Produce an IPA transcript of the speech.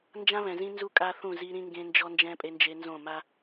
n d͡ʒ ã˦ β ɛ̃˨ z ĩ˦ n z u˦ kʼ a˦ θ ũ˦˨ z i˦ ɾ ĩ˦ ŋ ɡ ẽ˦ n d͡ʒ ɔ˦ n d͡ʒ ɛ̃˦ pʼ e˦ n d͡ʒ e˦ n z õ˦˨ m a˦

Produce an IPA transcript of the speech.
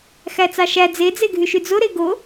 x æ t͡s ɑ ʃ æ d͡z e d͡z e ɡʱ y ʃ y d͡z o ɾ e ɡ o

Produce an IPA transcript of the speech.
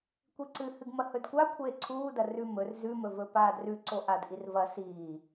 kʷ i ǀ ɨ h ɨ ɡ m ɐ h ɵ d kʷ a kʷʰ eː ǀʰ uː d ɐ r ʉ m ɵ r z ʉ m ɵ v ɵ p aː d r ʉ ǀ o ʔ a d ʔ i r v ɐ s iː

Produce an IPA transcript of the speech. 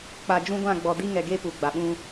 k͡p a˨ d͡ʒ ũ˦ ɡʷ ã˦˨ ɡ͡b ɔ˨ d i˦ ŋ ɛ˨ ɡ e˦ p u˨ ɡ͡b a˨ ɓ ũ˦

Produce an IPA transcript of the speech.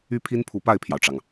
y˥ pʰ i˥ n pʰ u˧˥ p a˥˩ ɪ̯ pʰ j ɑ˩ ʊ̯ ʈ͡ʂ ɑ˩ ŋ

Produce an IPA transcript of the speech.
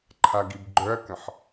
ǃʰ a ɡ i b ɡ͡ǃ œ ɐ̯ k ə̃ ħ

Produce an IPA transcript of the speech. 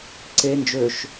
ǀ e n d͡ʒ ø ʃ

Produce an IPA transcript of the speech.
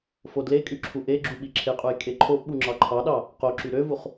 f o d l e kʼ y ǁʰ u ʔ e ɡ͡ǁ u ɓ i ǁʰ e qʼ u j kʼ e ǃʰ o ʔ ɓ u ŋ͡ǁ ɑ ǃʰ ɑ ɗ ɑ | q o ǁ y ɾ ø v u χ

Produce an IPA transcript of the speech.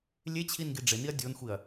lʲ e t͡ɕʰ i n ɡ i ɖ͡ʐ ɪ n i ɐ̯ dʲ o n xʷ i ɐ̯

